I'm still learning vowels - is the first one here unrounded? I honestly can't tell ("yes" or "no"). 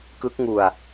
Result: yes